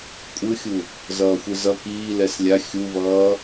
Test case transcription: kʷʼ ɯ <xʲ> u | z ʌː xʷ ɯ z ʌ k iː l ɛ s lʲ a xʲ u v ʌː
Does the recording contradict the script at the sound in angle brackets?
no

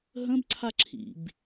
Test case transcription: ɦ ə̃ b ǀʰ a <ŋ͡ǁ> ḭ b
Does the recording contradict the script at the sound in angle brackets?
yes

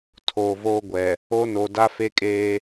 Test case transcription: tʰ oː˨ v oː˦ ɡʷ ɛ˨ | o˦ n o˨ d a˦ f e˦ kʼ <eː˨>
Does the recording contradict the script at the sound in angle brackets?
yes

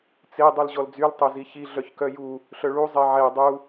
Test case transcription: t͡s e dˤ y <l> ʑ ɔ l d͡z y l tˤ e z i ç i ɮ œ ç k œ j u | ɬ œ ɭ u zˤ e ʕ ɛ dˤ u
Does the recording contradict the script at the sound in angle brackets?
no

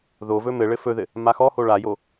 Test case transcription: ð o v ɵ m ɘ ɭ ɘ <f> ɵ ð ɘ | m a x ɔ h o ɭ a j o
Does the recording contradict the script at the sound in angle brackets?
no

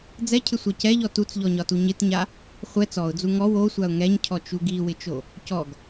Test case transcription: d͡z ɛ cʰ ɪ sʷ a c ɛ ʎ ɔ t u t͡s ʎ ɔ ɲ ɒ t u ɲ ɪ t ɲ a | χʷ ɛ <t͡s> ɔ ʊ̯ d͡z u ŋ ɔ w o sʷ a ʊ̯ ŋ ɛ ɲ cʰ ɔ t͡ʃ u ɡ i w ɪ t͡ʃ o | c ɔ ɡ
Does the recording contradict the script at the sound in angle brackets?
no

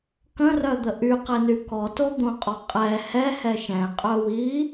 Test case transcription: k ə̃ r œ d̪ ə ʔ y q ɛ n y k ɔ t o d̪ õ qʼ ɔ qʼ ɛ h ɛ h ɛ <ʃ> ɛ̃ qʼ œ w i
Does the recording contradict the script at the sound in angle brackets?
no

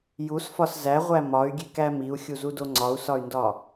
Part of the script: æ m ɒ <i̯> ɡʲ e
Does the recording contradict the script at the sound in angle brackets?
yes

